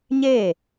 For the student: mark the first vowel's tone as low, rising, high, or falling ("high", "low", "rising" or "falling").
falling